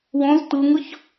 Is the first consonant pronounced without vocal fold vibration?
no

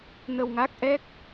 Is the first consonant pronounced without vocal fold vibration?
no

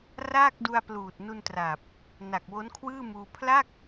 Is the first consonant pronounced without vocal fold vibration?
no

